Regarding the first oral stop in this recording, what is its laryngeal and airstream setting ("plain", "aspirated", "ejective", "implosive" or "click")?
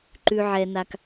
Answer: click